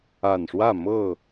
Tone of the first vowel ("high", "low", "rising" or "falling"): low